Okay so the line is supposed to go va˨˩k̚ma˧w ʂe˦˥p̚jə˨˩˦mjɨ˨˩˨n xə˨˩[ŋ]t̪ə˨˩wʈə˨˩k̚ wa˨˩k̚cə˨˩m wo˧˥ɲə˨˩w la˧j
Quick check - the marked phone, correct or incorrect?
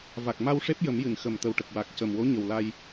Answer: incorrect